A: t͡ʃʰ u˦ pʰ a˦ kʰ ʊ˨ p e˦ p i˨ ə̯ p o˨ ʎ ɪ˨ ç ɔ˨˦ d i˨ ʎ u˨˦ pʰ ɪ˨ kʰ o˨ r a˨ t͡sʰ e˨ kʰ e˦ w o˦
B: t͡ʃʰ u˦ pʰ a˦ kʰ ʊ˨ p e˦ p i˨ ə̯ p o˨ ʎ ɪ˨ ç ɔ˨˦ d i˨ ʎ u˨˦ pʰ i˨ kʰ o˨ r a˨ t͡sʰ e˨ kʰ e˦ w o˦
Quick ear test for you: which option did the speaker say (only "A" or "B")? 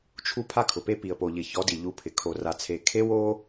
A